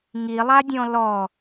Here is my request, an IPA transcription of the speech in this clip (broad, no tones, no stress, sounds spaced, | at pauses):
ŋ i lˠ a dʲ ɔ̃ l ɔ